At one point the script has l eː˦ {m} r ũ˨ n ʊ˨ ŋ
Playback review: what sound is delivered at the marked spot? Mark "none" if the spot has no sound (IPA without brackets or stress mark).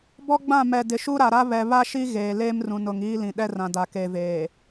m